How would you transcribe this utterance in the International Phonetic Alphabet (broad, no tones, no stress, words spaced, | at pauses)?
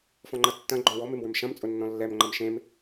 fɔ̃ŋ͡ǃɐtːɐ̃ ɡ͡ǃɔ̃wɔm emwʏmʃɐ̃m t͡sʼʊnːɔ̃lːɛm ŋ͡ǃɐmʃẽm